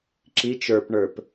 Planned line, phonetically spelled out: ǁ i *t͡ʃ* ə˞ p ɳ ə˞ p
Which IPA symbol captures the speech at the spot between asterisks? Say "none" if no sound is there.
t͡ʃ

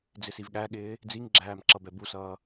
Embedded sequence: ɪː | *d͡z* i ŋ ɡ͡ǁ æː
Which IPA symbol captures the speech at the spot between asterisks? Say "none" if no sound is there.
d͡z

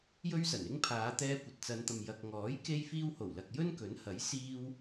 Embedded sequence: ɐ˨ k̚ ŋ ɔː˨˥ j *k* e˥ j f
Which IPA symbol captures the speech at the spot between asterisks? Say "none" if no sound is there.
k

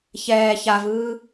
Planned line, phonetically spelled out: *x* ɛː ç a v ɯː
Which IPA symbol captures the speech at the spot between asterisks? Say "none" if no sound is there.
ç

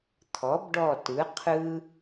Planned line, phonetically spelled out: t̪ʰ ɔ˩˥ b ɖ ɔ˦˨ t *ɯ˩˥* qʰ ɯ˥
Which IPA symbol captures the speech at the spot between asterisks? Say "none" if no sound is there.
ɯ˩˥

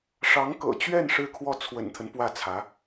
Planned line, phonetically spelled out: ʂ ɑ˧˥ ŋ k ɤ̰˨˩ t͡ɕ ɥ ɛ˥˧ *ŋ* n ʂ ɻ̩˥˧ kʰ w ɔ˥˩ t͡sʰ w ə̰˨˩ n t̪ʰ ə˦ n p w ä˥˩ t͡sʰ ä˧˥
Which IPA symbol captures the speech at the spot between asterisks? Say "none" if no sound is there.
none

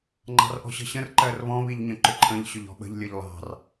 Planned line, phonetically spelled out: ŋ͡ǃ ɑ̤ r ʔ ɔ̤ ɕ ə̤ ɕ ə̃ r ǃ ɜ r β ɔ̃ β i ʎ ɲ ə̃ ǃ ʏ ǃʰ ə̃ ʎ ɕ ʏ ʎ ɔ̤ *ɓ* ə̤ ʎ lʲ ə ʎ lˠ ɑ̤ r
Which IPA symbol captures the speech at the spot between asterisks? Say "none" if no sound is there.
ɓ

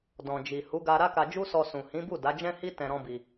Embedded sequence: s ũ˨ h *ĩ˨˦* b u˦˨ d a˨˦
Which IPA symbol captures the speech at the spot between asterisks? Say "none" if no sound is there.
ĩ˨˦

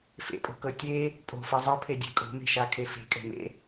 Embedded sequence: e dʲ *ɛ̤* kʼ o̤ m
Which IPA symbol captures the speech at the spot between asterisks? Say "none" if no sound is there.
ɛ̤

